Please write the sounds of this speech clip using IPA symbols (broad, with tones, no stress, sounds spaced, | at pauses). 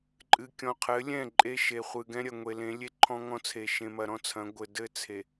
ǃʼ ɨ˨ kʲ ɔ̃˨ qʰ ɘ˨˦ lʲ ɛ̃˦˨ ǃʼ e˦ ʃ e˨ χʷ ɨ˨ ɡ ɛ̃˦ ɾʲ ɐ˨ ŋʷ e˨ l ẽ˨˦ lʲ e˦ ǃʰ ɔ̃˦ ŋ ɔ̃˦ t͡sʰ e˨ ʃ ẽ˨ m ɐ˨ ɾ ɔ̃˦ t͡sʰ ɐ̃˨˦ ɡʷ ɘ˨ d ɘ˦˨ t͡sʰ e˨